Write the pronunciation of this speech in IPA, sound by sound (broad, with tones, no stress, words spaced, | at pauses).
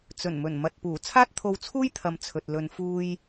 t͡sɵ˨˩nmɵ˨˩n mɐ˨t̚puː˨˩ t͡sʰaː˥t̚t̪ʰo˧wt͡sʰuː˥jt̪ʰɐ˨m t͡sʰɵ˨t̚lɵ˧n fuː˥j